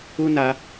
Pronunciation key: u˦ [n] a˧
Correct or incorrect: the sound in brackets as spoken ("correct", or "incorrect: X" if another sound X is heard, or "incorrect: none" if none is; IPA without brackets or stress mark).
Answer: correct